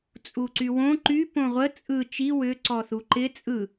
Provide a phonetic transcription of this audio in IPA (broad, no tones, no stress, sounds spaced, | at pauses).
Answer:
t͡sʼ u ǀ y w õ ǃ y p õ ʁʷ ə t͡sʼ ɯ t͡ʃ i w ʏ ǀ ɔ θ u ǃ ɪ t͡sʼ ɯ